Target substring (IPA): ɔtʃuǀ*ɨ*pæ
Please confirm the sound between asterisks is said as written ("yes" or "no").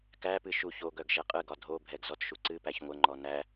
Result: yes